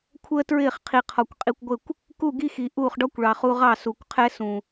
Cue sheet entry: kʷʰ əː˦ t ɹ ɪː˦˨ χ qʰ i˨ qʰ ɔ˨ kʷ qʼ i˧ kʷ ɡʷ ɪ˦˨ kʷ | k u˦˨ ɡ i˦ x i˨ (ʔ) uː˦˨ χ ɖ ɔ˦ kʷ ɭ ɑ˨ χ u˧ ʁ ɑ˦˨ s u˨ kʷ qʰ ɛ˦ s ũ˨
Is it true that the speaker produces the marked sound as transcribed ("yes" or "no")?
yes